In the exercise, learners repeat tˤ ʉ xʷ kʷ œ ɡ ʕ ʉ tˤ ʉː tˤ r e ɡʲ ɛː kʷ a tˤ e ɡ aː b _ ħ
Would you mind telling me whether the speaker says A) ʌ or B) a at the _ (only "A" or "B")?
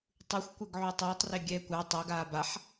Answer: B